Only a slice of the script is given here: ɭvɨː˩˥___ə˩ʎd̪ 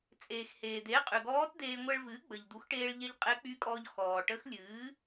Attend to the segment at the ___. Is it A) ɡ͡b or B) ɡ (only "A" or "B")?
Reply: A